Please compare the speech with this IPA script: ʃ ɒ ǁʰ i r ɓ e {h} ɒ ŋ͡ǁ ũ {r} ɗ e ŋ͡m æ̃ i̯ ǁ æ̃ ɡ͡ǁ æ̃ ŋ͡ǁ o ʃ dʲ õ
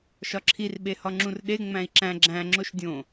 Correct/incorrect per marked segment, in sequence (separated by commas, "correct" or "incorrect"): correct, correct